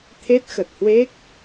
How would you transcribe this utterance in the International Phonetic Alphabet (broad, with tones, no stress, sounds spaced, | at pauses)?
t̪ʰ e˦˥ t̚ x ə˨˩ t̚ h w e˦˥ k̚